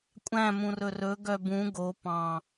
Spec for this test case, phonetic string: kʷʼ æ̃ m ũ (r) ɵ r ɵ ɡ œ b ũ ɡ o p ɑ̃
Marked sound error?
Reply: no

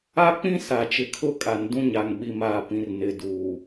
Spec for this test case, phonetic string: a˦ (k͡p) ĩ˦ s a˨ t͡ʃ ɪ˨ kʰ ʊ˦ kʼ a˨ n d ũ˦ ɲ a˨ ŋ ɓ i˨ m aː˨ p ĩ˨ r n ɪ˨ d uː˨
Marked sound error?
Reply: no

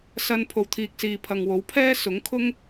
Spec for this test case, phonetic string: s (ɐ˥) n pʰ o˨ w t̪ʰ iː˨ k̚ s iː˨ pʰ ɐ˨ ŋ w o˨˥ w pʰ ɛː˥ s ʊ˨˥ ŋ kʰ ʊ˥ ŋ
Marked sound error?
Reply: yes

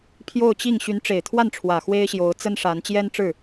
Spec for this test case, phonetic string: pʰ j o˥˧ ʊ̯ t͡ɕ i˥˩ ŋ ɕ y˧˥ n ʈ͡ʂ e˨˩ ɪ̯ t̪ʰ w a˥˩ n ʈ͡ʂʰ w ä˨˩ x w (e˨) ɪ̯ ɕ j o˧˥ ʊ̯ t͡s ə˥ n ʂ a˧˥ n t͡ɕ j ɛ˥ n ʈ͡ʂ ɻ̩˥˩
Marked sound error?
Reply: yes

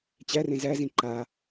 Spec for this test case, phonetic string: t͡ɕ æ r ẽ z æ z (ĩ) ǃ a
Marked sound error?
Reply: no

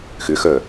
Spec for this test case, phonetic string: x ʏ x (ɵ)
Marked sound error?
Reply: yes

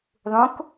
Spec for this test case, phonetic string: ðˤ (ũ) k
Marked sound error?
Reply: no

